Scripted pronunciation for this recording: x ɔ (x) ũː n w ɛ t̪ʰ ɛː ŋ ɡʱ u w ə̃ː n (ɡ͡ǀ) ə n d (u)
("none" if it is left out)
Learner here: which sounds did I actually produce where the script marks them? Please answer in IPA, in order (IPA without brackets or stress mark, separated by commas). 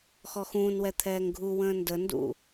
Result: x, d, ṵ